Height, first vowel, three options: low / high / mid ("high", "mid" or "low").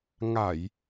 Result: low